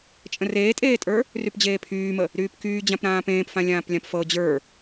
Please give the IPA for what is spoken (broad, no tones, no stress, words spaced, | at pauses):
t͡ʃʼə̃reːtʼeːtʼə˞ | rypd͡ʑeːpʰyːmə | ɾyːpkyː d͡ʑãpɾãːpẽːpfã lʲãːplʲãpfɤ d͡ʑə˞